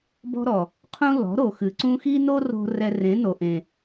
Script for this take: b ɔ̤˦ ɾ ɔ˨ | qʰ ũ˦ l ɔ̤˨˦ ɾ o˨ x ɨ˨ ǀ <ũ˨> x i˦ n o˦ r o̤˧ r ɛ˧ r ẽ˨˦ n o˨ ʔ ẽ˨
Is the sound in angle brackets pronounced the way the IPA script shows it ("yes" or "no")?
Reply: no